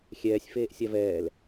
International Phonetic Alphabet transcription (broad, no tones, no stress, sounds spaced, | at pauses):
xʲ ɛː sʲ f eː ʔ sʲ a v ɛː l